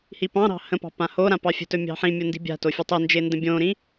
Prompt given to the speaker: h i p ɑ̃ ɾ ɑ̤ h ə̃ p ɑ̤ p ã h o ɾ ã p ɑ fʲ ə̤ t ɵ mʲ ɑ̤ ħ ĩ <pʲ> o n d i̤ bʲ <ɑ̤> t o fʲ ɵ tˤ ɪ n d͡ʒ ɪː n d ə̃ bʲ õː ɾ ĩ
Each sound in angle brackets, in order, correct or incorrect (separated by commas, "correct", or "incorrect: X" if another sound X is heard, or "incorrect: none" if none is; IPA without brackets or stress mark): incorrect: mʲ, incorrect: a̤